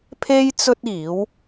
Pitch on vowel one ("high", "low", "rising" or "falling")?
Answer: high